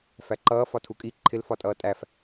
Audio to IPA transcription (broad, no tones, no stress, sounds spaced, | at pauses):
f æ ǃ ʌː f ɒ tʰ u kʼ i ǃʰ ɪ l f ɒ tʼ ʌː tʼ æ f